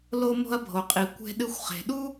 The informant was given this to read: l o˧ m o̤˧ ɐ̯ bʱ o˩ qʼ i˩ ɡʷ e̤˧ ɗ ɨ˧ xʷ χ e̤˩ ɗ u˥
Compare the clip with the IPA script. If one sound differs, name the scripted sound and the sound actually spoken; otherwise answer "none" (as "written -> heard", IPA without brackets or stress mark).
ɡʷ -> kʷ